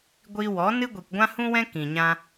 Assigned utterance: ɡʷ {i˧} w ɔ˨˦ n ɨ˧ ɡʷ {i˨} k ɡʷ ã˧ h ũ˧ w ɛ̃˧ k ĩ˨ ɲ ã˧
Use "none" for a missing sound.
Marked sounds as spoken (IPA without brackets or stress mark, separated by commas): i˧, i˨